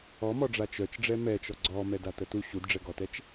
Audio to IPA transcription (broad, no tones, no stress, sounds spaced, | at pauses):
ɔ m ɔ ɖ͡ʐ a t͡ʃ œ t͡ʃ ɖ͡ʐ ɛ m ɛ t͡ʃ ɔ ɡ͡ǀ ɔ m ɛ d a t ə t u ɕ u d ɖ͡ʐ ɛ ɡ ɔ t ɛ t͡ʃ